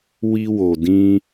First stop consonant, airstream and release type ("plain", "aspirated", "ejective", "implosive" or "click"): plain